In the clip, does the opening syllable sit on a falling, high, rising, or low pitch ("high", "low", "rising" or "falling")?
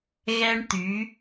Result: high